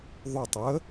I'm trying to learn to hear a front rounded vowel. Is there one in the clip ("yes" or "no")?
yes